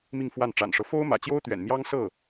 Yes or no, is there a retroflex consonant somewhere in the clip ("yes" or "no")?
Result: yes